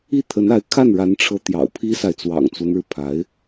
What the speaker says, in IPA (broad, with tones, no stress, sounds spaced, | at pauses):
i˥˩ t̪ʰ ə˧˥ n a˧˥ ɪ̯ kʰ a˥˩ n ɻ a˧˥ n ʈ͡ʂʰ ɤ˧˥ t̪ j ɑ̰˨˩ ʊ̯ pʰ i˥ s a˨ ɪ̯ t͡s w ɑ̰˨˩ ŋ t͡s w ə˦ n ɻ ɻ̩˩ pʰ a˧˥ ɪ̯